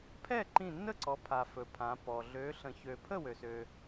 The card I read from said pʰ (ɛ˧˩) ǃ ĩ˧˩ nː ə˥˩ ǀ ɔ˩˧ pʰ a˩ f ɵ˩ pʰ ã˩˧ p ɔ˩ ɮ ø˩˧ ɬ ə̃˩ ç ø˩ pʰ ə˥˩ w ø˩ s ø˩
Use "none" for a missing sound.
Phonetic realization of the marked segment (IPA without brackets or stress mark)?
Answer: ɛ˥˩